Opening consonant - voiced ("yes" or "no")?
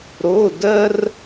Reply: yes